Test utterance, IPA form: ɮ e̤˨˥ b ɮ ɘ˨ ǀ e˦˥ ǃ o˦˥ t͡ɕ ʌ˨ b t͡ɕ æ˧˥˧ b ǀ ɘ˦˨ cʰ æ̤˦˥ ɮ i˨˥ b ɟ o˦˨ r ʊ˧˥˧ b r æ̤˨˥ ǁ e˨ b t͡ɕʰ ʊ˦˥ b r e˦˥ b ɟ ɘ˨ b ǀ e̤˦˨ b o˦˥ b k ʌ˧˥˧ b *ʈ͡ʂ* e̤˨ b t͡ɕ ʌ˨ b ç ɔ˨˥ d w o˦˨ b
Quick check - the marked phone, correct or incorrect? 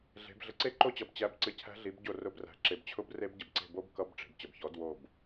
correct